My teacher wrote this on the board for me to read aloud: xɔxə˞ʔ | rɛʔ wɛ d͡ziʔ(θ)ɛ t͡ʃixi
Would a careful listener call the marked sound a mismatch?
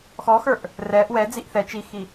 no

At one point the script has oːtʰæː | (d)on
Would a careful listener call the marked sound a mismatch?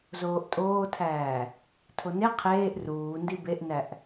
yes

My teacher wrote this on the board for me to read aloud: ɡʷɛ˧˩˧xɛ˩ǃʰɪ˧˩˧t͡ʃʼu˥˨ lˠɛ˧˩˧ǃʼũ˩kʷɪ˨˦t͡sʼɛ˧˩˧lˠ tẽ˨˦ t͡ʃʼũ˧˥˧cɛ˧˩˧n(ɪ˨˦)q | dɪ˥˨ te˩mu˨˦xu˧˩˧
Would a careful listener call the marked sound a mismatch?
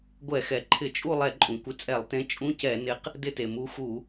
no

